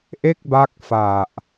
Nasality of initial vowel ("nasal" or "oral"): oral